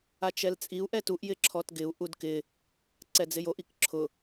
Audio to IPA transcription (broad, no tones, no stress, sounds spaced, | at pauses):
a t͡ʃ ɛ l t͡sʼ i u̯ ʔ ɛ t u ʔ j ɪ ǁʰ ɔ t ɡ ɪ u̯ ʔ u d k ɪ | ǀ ɛ d͡z ɪ j o ʔ i k ǁʰ ʊ